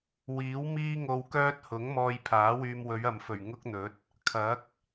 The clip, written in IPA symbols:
w iː˨˥ w m iː˥ ŋ o˧ w k œː˥ t̚ h ʊ˨˥ ŋ m ɔː˧ j pʰ aː˨˥ w yː˧ m w ɵ˨˧ ɥ ɐ˨ m f ɵ˨˩ ɥ ŋ ʊ˥ k̚ n̪ ɵ˨˥ t̚ | kʰ ɐ˨˥ k̚

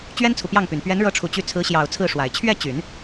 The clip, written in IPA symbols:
t͡ɕ ɥ ɛ˥ n t͡sʰ u˨ p j ɑ˥˩ ŋ p y˨˩ n p ɥ ɛ˧˥ n ɻ ɤ˧˥ ʈ͡ʂʰ u˨˩ t͡ɕ y˧˥ t͡sʰ ɹ̩˧˥ ɕ j ɑ˨˩ ʊ̯ t͡sʰ ɹ̩˥˩ ʂ w a˨˩ ɪ̯ t͡ɕʰ ɥ ɛ˥˩ t͡ɕ y˨˩˦ n

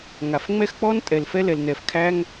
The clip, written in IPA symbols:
ŋ a˩ f ŋ͡m ɛ˥ x k͡p ɔ˥ n tʼ ɛ˩ l f ɛ˥ l ɛ˩ l n ɛ˩ f kʰ æ˥ ŋ

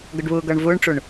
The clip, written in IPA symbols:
ɡ ʌ ɖ β ʊː ɡ ʌː ɳ v ʊː ɳ ʈ͡ʂ ʊ ɳ

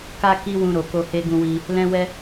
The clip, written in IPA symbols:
k a˦ k i˦ w ũ˧ ɾ o˨ k o˧ h e˦ ɡ ũ˦ w i˦ | l ɛ̃˦ w ɛ˦

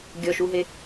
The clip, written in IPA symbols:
ɡʲ ɔ ʃ u ɦ e

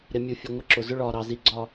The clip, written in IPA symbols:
ɾ ɪ˨ mʲ u˨ fʲ ʊ˨ ŋʷ ɪ˦ ǁ ʊ˨ z ʊ˦ ɭ ɒː˨ ɾ ɑ˨ z i˨ ɡ͡ǀ ɒ˦˨

